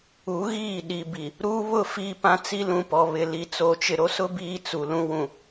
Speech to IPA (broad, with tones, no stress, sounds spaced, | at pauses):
u˨˦ ɣ iː˦˨ ɗ i˨ b i˨ | ɾ uː˦ β ʊ˦˨ f iː˦ p ã˦ t͡s i˦ l ũ˨ p ɔ˨ β ɪ˨ l i˨ t͡s o˨ t͡ʃ ɪ˨ ɾ o˦ s ʊ˦ b iː˦ t͡s u˨ l ũ˦ w ũ˨